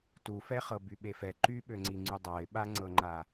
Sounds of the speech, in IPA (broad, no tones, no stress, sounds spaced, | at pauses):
t u f ɛ χ ɤ b y ɓ e f ɛ ǃ y ɓ ø ŋ͡ǀ i ŋ͡ǀ y dˤ a ɪ̯ ɓ a ŋ͡ǀ ɤ ŋ͡ǃ a